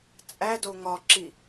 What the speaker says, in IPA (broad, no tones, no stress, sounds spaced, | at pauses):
t͡sʼ æ d o ŋ ɒ ǁ i